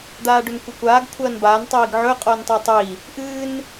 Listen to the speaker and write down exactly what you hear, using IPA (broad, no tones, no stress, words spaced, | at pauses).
d̪aːɖɵnkʷɨkʷaːɡ kʷʰɐːnbaːn tˤiːɡʕɵ qʼoːntˤɨːtˤji | ʔɨːn